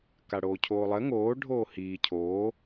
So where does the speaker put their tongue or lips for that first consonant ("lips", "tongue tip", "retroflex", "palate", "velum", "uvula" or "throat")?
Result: velum